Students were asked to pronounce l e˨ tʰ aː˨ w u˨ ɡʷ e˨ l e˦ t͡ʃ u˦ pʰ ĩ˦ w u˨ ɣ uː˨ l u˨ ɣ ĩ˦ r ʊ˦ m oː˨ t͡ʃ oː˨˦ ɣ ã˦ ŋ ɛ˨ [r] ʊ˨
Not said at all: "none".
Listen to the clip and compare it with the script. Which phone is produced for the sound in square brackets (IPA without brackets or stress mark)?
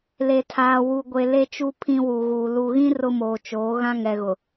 ɣ